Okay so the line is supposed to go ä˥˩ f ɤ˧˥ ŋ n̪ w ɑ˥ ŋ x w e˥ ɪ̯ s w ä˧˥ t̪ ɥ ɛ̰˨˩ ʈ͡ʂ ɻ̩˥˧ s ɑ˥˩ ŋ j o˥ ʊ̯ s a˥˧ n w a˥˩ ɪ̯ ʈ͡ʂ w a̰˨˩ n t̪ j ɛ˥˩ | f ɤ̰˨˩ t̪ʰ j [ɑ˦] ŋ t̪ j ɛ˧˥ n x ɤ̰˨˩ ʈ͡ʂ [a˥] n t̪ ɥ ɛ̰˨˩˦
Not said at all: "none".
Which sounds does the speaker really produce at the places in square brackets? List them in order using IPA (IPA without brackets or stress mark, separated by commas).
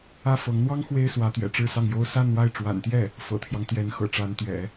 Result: ɑ˦, a˧˥